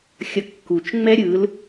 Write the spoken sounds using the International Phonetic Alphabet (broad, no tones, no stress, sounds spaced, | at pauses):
xʲ ʌ kː u t͡ʃ ŋ͡m ɛ ɾʲ ɯ l